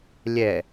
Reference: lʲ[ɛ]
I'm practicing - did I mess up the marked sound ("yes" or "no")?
no